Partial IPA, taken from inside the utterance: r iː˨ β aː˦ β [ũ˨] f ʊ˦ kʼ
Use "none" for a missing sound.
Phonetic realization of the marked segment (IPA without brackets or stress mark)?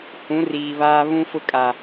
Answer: ũ˦